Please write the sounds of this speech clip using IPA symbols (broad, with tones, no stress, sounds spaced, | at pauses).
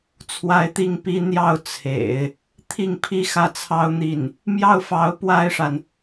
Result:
t͡sʰ w a˧˥ ɪ̯ t̪ i˥˩ ŋ p i˥ n̪ j ɑ˥˩ ʊ̯ t͡sʰ ḛ˨˩˦ ɪ̯ | t̪ʰ i˥˩ ŋ pʰ i˥ x ä˥˩ t͡sʰ ɑ˥ ʊ̯ n̪ i˥˩ n | m j ɑ˥˩ ʊ̯ f ɑ˧˥ ʊ̯ p w a˥˩ ɪ̯ ʂ a˩ n